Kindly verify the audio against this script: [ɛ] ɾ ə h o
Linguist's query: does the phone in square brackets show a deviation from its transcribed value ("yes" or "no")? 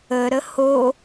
yes